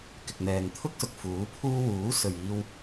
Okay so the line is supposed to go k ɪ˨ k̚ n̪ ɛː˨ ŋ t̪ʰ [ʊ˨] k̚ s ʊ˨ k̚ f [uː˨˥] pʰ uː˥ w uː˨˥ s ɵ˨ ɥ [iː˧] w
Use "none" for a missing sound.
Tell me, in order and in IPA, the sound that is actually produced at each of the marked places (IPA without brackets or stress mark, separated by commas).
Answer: ʊ˥, uː˨˥, iː˧